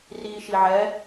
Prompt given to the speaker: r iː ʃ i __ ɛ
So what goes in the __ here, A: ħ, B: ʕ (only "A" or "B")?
B